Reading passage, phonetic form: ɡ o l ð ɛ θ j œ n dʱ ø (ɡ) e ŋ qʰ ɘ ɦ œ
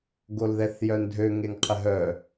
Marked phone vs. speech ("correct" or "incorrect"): incorrect